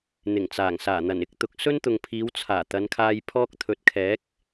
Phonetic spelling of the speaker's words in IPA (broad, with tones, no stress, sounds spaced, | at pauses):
n̪ ɪ˨˩ ŋ t͡s aː˨˩ ŋ s aː˨˩ n̪ ɐ˨˩ n ɪ˥ k̚ t̪ ʊ˨˥ k̚ s ɵ˥ n t̪ ʊ˨ ŋ pʰ iː˨˧ w t͡sʰ aː˨˩ t̪ ɐ˨˧ n kʰ aː˧ j pʰ ɔː˥ k̚ t̪ʰ ɵ˨˥ t̚ kʰ ɛː˨˥ k̚